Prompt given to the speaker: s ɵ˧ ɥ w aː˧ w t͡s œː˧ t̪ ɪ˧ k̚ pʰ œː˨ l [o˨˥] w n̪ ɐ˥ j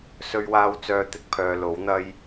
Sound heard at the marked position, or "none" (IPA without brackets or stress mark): o˨˥